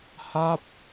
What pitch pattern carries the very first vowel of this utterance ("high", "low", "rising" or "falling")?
falling